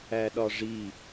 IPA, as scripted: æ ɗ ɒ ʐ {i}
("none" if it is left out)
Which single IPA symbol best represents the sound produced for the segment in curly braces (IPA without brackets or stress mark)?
i